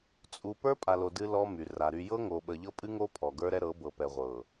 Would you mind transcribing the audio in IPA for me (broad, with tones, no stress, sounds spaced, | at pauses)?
t͡sʼ u˨ p ə˞˦ pʼ a˨ l o˨ d ɨ˦ l ɔ˦ m y˨ r a˨ ɾ y˨ j ɤ˦ ŋ o˨ ɓ ə˨ ʎ ɤ˦ pʼ ɨ˦ ŋ o˦ pʰ ɔ˨ ɡ ə˞˦ ɾ ɛ˦ ɾ ɤ˨˦ b ɤ˨ p ɛ˨ ʁʷ ɤ˨